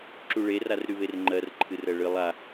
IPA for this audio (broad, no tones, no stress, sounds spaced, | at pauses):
ǁ u ɭ e r a r ɾ y β e r ŋ͡ǃ ɜ r ǃʰ ɨ r ɜ ɭ ɨ lˠ a